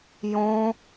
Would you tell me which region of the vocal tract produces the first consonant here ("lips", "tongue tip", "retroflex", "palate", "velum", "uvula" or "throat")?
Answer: palate